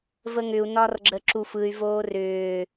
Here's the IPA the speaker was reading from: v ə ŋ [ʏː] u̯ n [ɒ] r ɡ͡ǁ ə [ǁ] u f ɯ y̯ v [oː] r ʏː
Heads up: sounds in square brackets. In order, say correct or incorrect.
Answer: incorrect: ʏ, correct, correct, correct

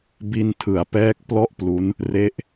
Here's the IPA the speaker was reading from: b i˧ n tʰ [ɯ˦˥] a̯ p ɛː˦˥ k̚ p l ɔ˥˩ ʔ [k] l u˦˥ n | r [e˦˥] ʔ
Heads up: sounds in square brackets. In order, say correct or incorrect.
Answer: incorrect: ɯ˩˦, incorrect: p, correct

